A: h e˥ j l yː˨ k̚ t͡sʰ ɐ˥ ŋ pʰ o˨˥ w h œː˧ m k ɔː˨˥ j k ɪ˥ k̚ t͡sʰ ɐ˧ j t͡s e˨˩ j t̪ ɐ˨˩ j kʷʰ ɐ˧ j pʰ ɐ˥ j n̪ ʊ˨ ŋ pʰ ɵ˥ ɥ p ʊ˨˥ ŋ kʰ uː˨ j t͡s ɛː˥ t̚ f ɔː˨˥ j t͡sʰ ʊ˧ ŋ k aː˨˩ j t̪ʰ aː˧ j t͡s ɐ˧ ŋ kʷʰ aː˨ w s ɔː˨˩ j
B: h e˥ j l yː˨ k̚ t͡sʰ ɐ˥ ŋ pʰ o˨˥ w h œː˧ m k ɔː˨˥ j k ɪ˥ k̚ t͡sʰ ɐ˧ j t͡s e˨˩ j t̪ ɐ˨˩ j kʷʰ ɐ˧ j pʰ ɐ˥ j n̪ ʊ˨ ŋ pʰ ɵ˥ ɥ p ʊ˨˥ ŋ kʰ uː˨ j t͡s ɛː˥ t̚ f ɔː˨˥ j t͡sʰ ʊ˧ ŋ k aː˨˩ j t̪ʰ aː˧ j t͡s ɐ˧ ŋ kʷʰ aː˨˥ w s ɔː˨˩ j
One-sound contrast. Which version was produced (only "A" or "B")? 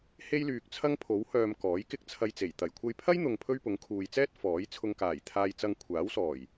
B